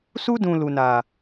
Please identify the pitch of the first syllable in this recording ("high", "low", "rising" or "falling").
high